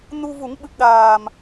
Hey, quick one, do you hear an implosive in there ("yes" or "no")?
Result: yes